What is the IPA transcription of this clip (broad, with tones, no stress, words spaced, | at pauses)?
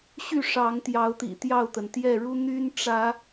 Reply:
ɕy˥˨ʂɑ˨˦ŋ t̪jɑ˨˦ʊ̯t̪ḭ˨˩ t̪jɑ˥˨ʊ̯t̪ə˩n t̪jɛ˥˨ɻu˦ n̪y˦n ʈ͡ʂä˨˦